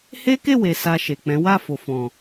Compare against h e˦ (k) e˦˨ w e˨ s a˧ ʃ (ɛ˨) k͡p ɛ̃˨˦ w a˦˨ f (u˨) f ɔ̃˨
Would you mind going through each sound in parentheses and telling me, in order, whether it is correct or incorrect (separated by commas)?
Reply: correct, incorrect, incorrect